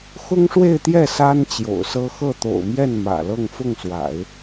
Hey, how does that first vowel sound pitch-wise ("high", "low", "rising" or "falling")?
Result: high